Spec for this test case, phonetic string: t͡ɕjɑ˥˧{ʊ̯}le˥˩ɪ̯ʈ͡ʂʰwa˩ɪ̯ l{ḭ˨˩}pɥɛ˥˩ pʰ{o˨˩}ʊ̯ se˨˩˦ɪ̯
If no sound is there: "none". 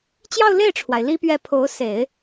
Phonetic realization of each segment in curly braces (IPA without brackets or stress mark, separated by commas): ʊ̯, i˥, o˧˥